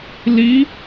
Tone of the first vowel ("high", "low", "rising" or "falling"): rising